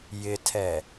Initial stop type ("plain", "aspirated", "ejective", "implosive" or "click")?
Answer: aspirated